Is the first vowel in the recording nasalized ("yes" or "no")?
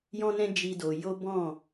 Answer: yes